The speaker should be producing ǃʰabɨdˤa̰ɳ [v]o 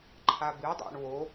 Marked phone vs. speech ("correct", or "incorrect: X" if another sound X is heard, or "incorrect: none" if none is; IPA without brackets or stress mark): incorrect: w